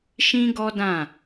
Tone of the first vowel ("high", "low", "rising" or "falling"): high